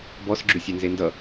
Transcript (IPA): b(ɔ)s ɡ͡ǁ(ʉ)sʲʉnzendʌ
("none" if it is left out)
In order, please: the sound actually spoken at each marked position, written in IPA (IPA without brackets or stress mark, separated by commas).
ɔ, ʉ